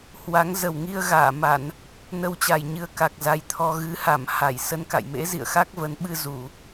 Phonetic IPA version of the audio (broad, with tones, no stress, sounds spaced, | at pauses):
h w a˨˦ ŋ z ə˨˩ w ŋ i˧ ə̯ ɣ aː˧˩ m a˧˩˨ n | n ə˧ w t͡ɕ a˨˩ j ɲ ɨ˧ ə̯ k a˨˩ k̚ z a˨˦ j t̪ʰ ɔ˧ ɣ ɨ˨˦ h a˧˩ m h a˧˩ j s ə˧ n k a̰˧˨ j m ḛ˧˥ z ḭ˧˨ ə̯ x a˦˥ k̚ v ə˨˦ n ɓ ɨ˧ z u˧˩˨